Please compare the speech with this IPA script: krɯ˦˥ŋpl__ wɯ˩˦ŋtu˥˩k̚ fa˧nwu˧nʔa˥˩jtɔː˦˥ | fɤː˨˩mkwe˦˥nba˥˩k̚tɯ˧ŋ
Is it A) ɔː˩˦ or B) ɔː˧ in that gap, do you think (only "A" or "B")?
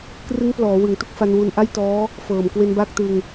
A